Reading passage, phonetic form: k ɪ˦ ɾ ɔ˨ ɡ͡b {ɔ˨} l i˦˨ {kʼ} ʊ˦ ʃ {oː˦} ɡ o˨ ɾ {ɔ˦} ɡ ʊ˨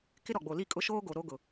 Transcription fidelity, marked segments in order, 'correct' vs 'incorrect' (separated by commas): incorrect, correct, correct, incorrect